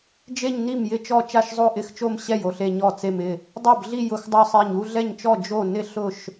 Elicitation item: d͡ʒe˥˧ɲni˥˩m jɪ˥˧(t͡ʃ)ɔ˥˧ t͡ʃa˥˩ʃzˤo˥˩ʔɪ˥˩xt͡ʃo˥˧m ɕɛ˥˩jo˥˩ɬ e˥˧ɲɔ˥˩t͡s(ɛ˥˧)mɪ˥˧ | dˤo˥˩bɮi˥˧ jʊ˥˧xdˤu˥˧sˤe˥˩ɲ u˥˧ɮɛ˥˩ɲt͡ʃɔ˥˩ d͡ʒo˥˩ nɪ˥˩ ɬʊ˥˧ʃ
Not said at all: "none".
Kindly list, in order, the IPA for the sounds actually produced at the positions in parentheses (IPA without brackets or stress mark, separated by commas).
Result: t͡ʃ, e˥˧